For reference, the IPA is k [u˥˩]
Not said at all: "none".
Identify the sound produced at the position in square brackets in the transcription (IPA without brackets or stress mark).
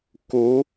u˧˥